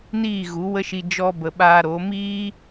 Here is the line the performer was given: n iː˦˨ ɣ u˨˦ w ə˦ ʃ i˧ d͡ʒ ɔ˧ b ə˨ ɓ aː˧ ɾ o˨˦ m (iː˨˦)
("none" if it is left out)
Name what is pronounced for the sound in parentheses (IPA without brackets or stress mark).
iː˦